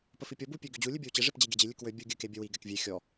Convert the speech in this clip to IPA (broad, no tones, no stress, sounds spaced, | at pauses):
p ə f i pʲ ɔ b u pʲ ø ɡ ø d͡ʑ u lʲ ɨ bʲ ʌ w t͡ɕ e ʐ e p d͡ʑ e ɡʲ ɛ d͡ʑ i lʲ ɨ k w ø bʲ u ɡʲ ɨ k e bʲ ə w i ɡ ɛ k vʲ e xʲ ɔ